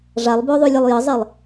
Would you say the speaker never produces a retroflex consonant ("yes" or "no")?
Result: no